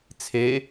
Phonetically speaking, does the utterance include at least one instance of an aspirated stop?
yes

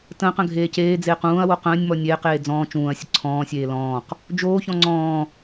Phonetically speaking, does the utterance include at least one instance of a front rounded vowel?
no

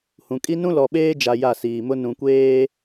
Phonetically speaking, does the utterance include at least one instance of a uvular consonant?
no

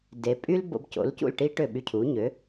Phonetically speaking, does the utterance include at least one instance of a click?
no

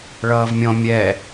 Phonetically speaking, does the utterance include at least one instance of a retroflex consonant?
yes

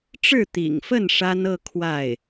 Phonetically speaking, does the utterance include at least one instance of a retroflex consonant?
yes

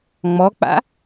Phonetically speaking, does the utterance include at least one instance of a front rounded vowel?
no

